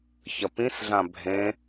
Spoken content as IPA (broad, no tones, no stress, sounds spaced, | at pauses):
ç ɐ p ĩ s ɮ ã bʱ ẽ